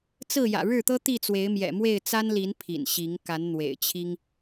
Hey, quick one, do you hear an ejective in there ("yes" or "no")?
no